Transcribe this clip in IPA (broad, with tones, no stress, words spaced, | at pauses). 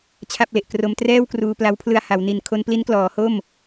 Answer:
t͡ɕʰa˥˩p̚le˨˩ʔ kro˧mtrɛː˥˩wkruː˧ pla˦˥wpʰlɯ˧a̯ ha˩˦w ni˨˩nkʰo˧npli˦˥nklɔː˩˦ ho˥˩m